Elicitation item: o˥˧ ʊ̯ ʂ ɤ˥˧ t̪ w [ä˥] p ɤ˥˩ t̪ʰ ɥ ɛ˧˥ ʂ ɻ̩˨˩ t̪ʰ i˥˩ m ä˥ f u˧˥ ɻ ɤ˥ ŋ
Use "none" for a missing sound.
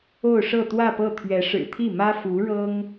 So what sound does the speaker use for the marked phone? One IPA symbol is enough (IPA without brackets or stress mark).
ä˥˧